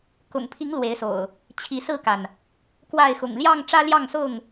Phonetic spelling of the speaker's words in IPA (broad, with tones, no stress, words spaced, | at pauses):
kʊ̰˨˩ŋpʰi˨˦ŋ lwe˨˦ɪ̯so̰˨˩ʊ̯ | t͡ɕʰi˨˦sɹ̩˥˨ka˩n | kwa˥˨ɪ̯ xʊ̰˨˩ŋljɑ˥˨ŋ ʈ͡ʂä˦ljɑ˥˨ŋsʊ˥˨ŋ